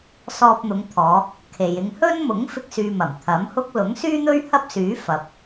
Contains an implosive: no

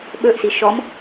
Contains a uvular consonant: no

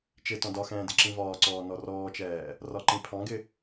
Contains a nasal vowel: yes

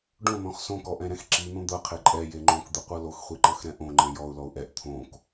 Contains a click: yes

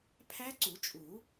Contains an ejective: yes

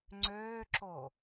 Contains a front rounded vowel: yes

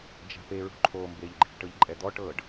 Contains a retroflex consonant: yes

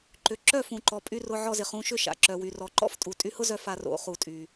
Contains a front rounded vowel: yes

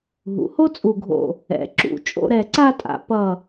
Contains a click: yes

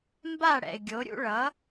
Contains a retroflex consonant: yes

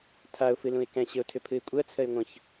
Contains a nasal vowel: yes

